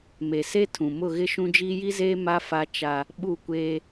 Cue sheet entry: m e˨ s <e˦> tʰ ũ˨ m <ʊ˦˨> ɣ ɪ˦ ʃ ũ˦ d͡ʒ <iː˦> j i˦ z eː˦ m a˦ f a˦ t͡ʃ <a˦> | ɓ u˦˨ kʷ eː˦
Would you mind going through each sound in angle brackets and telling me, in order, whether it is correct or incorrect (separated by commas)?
correct, correct, correct, correct